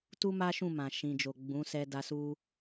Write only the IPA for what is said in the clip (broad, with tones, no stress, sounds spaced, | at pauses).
t u˦ m a˦ ʃ ũ˦˨ m ã˨ ʃ ĩ˨ d͡ʒ o˨ ɡ͡b ũ˨˦ s ɛ˧ d a˧ s u˧